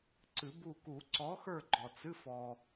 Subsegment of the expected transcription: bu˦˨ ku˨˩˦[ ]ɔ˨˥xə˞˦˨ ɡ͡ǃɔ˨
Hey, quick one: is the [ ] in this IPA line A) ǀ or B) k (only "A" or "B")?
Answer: A